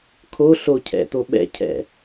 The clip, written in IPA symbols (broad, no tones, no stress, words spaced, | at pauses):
kʰo ɬo cʰɛ̰t̪o ɓɛ̰ cʰɛ̰